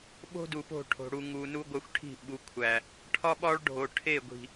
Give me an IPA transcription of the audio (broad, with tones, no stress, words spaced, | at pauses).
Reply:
ɓo̤˦du˨po̤˦˨ ʈʰo̤˨ɽu˨ŋu˨ nu˦ɡʷæ˦xʷʈʰi̤˦˨ ɓu˨˦kʷʰæ˨ | ʈʰɒ˦ɓɒ˦ɭɖʱo˨ ʈʰe˦˨ɡʷi̤˨